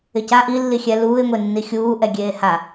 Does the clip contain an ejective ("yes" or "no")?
no